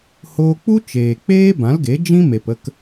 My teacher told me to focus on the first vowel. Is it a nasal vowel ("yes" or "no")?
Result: no